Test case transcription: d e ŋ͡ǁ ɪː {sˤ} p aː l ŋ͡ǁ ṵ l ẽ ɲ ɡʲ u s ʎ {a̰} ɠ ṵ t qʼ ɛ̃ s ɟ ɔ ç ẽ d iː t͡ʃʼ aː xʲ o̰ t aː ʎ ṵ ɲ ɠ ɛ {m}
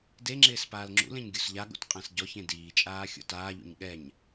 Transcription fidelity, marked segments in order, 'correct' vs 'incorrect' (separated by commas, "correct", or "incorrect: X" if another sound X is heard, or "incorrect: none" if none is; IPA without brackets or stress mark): incorrect: s, incorrect: a, incorrect: ɲ